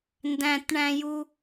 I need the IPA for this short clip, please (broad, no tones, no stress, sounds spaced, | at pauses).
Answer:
n d æ̃ t ɳ æ̃ j u